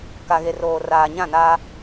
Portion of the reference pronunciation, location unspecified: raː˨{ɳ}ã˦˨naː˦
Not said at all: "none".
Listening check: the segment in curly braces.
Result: ɲ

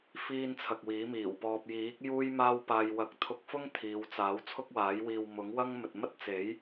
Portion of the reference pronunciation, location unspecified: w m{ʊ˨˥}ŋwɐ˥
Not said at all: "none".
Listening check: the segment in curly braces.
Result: ʊ˨˥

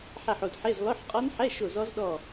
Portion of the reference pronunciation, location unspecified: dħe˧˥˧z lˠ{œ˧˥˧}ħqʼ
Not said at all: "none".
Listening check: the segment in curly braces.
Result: œ˧˥˧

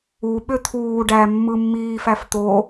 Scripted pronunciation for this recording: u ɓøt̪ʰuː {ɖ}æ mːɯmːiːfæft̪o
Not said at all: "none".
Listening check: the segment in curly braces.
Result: ɖ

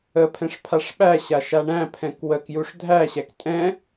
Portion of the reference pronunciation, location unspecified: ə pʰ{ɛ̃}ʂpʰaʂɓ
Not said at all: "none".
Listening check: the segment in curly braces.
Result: ɛ̃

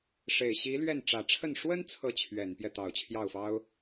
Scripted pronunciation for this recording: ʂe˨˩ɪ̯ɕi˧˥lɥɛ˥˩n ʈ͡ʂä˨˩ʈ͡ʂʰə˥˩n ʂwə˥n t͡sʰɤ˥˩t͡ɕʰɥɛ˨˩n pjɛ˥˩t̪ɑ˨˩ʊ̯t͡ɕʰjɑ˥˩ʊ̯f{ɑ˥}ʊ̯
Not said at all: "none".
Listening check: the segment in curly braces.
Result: ɑ˥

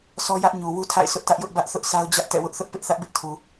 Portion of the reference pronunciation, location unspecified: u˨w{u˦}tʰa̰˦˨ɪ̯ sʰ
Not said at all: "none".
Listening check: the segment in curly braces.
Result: u˦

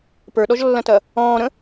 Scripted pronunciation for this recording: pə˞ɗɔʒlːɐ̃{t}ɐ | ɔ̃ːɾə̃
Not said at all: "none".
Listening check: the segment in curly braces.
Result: t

